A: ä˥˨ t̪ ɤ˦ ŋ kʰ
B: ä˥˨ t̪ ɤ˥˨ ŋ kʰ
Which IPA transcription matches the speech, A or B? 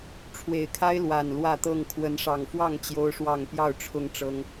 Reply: B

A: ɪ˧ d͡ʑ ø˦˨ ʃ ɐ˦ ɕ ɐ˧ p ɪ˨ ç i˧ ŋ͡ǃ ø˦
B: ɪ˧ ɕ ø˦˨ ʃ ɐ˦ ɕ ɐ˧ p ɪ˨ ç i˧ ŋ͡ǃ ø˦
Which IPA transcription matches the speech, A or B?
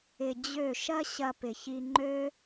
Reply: A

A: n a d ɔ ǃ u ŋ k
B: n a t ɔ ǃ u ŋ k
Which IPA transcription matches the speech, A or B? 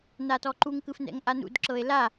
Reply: B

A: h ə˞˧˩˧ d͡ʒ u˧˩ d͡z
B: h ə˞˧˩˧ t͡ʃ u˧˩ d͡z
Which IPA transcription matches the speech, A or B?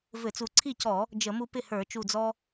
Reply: B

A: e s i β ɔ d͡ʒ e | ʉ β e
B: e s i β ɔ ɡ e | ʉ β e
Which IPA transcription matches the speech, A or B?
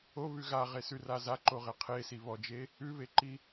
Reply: A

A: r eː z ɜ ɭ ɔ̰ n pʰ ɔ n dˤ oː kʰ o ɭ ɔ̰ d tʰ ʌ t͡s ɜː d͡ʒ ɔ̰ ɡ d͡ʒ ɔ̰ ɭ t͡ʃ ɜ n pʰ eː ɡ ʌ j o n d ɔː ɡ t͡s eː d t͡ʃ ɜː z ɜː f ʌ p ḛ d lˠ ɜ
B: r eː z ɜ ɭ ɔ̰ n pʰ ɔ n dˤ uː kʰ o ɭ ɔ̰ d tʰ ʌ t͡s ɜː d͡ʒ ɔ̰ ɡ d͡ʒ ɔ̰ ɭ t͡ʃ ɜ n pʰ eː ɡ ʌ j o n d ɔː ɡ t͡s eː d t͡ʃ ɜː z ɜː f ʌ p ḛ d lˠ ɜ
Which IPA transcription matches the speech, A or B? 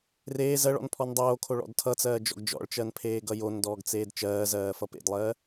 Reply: A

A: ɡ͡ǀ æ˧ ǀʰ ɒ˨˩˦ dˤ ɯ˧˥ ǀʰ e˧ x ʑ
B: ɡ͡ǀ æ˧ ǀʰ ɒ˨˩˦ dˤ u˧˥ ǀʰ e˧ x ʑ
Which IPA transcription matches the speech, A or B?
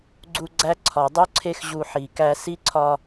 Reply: B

